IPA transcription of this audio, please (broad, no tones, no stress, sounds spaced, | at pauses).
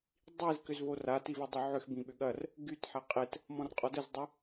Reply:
dˤ i z k ʏ z v o r a t i v ɐ dˤ ʏ ʕ ʏ x b ĩ ɓ ʏ ɠ ɐ r | ɡ y t ħ a qʼ e t | m ɔ̃ r qʼ ɔ d ə z dˤ ʏ